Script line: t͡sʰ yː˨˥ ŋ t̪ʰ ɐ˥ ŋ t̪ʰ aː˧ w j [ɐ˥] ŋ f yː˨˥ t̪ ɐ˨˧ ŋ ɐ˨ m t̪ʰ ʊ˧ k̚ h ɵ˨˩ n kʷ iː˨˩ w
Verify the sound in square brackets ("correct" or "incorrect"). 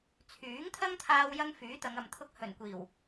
correct